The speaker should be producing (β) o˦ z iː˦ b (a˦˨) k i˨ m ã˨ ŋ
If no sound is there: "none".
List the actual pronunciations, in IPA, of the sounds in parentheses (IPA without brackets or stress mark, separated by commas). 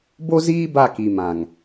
b, a˦˨